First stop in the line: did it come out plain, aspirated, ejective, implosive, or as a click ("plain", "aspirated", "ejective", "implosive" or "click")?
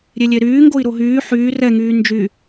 plain